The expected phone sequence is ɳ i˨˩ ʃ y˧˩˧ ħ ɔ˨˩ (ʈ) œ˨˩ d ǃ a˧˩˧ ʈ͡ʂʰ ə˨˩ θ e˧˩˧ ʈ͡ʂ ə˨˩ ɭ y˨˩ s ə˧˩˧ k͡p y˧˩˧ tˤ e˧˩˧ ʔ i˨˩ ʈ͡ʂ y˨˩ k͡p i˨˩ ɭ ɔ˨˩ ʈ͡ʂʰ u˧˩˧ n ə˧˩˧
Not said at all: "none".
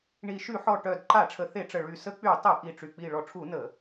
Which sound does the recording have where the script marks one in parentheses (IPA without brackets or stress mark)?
ʈ